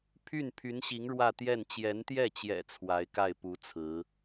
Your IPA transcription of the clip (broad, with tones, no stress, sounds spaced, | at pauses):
pʰ y˥˩ n pʰ y˧˥ n ɕ i˧˥ ŋ ɻ w ä˥˧ t̪ j ɛ˥˩ n t͡ɕ j ɛ˧˥ n t̪ j ɛ˥˩ t͡ɕ j ɛ̰˨˩ t͡sʰ w a˧˥ ɪ̯ k a˥˩ ɪ̯ p u˧˥ t͡sʰ ɹ̩˧˥